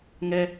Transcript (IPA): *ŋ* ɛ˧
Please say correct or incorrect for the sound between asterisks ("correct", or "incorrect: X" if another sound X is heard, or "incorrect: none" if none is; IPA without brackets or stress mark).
correct